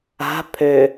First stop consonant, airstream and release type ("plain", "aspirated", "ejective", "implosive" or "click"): aspirated